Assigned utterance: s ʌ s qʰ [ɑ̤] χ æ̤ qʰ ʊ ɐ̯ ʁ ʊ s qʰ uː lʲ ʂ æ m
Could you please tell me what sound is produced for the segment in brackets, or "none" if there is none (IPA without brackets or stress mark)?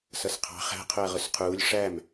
ɑ̤